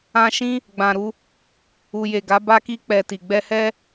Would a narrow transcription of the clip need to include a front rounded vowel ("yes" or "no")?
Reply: no